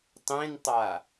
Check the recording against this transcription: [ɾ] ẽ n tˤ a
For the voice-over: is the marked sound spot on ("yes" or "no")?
no